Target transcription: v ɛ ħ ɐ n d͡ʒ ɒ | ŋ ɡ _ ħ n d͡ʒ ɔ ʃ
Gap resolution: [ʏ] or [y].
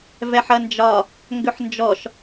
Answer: ʏ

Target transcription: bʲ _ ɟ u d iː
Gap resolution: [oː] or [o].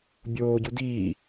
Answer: oː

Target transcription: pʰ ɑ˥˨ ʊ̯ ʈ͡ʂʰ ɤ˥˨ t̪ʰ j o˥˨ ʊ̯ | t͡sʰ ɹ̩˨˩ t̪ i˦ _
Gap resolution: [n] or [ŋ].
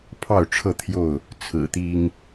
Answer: ŋ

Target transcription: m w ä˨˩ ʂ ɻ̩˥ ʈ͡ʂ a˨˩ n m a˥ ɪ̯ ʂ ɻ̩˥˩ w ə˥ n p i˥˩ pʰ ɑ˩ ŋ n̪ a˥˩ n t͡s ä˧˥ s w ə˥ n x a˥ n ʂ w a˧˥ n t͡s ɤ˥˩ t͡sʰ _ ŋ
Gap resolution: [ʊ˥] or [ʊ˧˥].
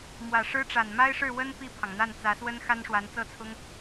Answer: ʊ˥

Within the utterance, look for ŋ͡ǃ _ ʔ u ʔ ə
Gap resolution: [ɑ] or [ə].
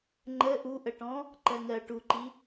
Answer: ə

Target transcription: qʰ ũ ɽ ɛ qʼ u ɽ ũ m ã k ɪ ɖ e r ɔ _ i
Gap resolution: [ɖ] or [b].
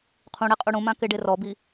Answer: b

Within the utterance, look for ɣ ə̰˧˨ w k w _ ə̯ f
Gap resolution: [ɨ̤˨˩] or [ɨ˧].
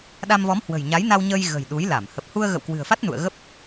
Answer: ɨ̤˨˩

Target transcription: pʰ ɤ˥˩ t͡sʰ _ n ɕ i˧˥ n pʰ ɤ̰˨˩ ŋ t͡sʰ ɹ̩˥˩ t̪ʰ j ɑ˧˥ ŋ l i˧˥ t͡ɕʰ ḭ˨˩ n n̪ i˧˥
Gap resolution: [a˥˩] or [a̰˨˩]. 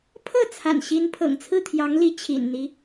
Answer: a̰˨˩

